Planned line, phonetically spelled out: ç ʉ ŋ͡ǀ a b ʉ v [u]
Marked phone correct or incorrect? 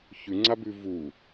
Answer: correct